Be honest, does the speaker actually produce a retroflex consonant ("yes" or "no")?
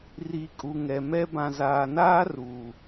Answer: no